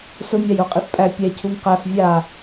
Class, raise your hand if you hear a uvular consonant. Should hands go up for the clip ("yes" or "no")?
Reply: yes